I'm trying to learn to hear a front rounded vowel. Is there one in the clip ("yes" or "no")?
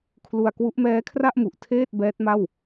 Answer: no